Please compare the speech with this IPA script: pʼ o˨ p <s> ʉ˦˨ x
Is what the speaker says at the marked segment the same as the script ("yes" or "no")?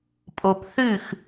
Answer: no